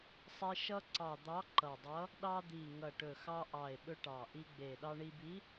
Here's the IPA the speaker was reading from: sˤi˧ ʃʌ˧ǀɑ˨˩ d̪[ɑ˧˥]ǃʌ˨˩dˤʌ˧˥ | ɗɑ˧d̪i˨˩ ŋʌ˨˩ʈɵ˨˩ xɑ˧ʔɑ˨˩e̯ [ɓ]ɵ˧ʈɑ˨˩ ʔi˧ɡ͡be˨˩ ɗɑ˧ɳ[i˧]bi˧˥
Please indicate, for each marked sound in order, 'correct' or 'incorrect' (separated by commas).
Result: correct, correct, correct